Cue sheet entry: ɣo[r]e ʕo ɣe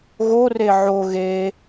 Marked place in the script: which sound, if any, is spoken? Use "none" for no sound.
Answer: r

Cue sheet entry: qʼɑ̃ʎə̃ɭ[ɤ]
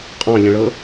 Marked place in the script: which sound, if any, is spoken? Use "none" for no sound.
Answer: ɤ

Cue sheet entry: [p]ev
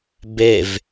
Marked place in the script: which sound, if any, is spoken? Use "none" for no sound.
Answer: b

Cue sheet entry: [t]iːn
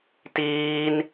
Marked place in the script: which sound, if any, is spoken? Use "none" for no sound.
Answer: t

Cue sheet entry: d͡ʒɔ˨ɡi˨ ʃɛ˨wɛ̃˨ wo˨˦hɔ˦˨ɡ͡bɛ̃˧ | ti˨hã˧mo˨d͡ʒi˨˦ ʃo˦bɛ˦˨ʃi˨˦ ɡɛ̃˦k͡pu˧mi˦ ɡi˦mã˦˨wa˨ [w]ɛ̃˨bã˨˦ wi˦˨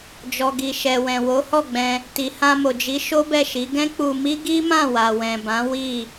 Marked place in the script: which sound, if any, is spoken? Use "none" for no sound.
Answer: w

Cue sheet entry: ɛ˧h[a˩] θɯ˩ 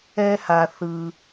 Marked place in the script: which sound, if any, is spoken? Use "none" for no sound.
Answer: a˩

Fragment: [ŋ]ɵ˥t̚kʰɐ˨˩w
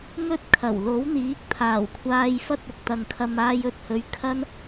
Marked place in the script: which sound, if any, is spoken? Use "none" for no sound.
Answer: ŋ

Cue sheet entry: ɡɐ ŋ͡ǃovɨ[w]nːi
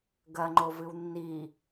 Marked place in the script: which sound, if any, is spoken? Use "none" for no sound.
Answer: w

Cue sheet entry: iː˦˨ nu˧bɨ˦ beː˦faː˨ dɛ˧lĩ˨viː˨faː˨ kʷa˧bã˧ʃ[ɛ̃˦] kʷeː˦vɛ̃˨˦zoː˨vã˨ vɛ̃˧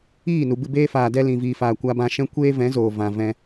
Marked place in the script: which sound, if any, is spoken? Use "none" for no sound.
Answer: ɛ̃˦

